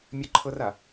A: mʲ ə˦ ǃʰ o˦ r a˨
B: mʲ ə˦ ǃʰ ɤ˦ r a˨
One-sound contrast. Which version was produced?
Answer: B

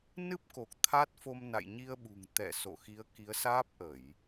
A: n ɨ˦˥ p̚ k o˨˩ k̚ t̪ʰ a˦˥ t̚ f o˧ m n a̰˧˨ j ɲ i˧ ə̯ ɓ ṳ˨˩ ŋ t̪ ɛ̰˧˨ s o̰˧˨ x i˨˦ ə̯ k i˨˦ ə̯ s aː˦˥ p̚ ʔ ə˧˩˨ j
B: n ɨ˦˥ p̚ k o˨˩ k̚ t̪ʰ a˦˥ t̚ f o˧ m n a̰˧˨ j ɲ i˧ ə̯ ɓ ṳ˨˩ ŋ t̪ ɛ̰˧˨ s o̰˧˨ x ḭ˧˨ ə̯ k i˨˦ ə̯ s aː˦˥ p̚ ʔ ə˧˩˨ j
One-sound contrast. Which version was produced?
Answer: A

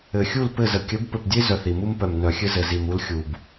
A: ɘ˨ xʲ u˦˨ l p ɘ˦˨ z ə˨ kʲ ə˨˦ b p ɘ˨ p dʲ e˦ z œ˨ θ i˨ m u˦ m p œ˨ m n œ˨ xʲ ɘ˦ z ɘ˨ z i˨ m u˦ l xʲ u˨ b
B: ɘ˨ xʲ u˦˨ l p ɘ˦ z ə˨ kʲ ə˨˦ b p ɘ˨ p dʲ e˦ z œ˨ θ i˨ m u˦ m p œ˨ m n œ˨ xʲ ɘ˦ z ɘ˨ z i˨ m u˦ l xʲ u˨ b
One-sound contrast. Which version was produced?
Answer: A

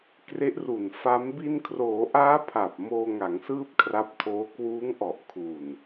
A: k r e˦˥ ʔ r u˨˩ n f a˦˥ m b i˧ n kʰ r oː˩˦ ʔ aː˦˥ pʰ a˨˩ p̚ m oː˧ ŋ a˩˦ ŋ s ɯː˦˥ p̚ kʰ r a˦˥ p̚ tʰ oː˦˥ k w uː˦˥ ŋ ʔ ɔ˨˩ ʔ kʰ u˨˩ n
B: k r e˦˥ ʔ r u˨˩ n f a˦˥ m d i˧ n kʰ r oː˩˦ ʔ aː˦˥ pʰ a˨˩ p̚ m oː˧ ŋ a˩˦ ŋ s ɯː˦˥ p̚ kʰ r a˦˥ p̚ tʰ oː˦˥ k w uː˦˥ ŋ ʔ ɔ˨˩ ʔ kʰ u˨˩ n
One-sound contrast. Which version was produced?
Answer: A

